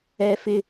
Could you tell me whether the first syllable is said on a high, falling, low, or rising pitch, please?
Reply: high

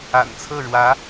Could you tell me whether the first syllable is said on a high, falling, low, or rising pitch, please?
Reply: low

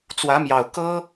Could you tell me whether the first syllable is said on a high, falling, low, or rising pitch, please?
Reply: rising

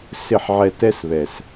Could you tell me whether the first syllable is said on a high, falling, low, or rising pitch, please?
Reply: falling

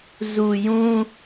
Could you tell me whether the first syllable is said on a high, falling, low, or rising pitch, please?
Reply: low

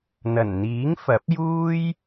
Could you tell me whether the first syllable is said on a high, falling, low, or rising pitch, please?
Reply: low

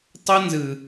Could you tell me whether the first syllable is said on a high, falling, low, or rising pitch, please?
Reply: high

